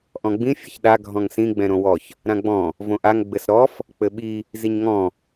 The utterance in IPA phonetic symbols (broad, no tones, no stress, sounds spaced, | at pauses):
ʔ ɔ̃ ɡ͡b ĩ fʲ ɨ ç ɗ a ɡʱ ɔ̃ ŋ s ĩ ɡ͡b ɛ̃ ɾ õ w ɔ ç | ɾ ã ɡ͡b ɔ̃ | v õ ʔ a ŋ ɡ͡b ɘ s ɾ ɔ f | k͡p ɘ ɓ i | z i ɲ ŋ ɔ̃